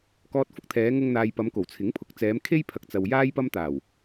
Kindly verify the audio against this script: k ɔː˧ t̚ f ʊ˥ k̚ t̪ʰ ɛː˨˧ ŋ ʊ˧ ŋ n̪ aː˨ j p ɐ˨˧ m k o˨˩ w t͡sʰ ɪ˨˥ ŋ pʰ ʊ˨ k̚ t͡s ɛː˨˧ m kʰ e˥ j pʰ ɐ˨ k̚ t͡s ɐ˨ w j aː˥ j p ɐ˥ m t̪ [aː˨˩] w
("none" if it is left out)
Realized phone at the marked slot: aː˨˩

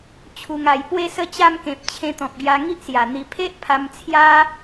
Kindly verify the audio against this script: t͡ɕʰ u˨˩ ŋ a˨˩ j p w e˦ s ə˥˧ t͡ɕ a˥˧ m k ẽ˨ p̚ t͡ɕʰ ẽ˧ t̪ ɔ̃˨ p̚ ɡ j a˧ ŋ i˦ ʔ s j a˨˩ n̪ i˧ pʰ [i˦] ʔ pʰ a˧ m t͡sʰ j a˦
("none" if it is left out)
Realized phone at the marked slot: e˦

